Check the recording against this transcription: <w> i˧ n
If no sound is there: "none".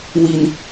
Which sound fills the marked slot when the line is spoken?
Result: w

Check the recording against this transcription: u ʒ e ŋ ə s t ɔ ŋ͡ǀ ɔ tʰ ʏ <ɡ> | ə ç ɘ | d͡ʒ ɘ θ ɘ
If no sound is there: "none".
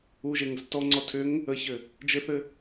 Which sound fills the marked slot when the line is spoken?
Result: ŋ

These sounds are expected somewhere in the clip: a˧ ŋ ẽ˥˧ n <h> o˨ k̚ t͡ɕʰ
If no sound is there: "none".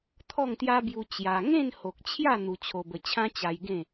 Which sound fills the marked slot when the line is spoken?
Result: h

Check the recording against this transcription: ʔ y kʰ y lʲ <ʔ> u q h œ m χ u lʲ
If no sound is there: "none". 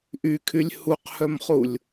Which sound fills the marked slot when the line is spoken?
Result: h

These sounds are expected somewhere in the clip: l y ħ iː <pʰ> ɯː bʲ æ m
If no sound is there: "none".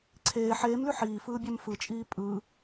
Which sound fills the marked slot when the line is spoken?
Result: f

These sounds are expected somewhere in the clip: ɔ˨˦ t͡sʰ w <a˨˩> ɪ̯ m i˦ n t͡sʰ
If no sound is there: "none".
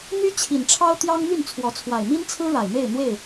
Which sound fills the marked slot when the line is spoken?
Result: a˨˩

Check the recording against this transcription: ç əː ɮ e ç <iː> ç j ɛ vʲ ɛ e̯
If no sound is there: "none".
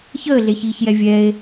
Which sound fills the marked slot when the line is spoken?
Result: iː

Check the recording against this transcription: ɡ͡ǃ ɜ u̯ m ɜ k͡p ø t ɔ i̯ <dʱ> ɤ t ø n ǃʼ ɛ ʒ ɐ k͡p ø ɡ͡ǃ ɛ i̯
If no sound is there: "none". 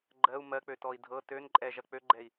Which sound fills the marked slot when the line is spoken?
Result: dʱ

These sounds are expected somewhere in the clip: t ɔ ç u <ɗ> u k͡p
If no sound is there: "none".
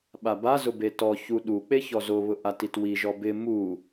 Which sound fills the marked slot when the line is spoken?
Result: ɗ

